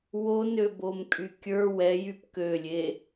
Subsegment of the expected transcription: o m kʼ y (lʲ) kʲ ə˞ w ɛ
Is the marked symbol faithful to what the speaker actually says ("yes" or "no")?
no